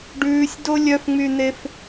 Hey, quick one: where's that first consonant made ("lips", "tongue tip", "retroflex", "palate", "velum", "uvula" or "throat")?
retroflex